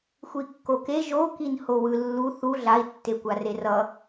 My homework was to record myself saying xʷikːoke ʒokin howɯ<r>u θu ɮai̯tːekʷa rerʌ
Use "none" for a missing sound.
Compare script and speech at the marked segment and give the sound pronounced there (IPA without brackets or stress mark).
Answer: lː